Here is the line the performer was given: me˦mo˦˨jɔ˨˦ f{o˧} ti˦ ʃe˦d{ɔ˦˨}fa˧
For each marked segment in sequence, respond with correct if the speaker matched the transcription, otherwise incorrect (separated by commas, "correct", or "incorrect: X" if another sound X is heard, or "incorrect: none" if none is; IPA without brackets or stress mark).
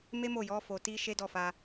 correct, correct